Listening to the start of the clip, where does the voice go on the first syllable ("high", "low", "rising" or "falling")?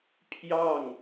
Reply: falling